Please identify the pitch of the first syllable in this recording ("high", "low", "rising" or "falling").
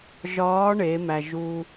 rising